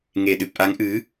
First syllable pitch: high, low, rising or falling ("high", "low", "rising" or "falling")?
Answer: low